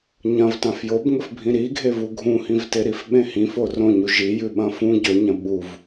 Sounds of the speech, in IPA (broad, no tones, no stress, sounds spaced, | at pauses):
ɲ ɐ̃ v t ã f j o b ŋ ɵ f bʱ ĩ ɾ i ɡʱ e v u ɡʱ ũ h ĩ v t e ɾ i f ɓ ẽ h ĩ f o r õ ɲ u ʒ i j ʉ ɓ ɐ̃ f ũ ɟ ɵ ɲ ɐ̃ ɓ u v